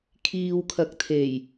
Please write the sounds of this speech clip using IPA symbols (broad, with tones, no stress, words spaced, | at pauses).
kʰiː˨wkʰɐ˨k̚ t̪ʰe˨˩j